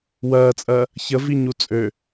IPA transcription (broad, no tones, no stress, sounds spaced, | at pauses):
w ɜː t͡sʼ ɜ | ç ə v i ɲ u t͡sʼ ø